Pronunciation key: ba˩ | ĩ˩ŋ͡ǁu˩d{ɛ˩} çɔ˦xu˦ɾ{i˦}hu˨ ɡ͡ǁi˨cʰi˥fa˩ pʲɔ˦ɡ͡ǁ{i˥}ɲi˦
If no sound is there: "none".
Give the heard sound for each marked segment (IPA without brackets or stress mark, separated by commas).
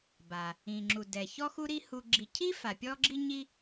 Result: ɛ˩, i˦, i˦